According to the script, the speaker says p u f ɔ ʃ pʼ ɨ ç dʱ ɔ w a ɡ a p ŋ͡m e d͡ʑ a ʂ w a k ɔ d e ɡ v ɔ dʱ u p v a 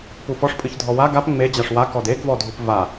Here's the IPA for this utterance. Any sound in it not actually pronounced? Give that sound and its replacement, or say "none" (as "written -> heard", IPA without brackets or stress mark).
ʃ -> ʂ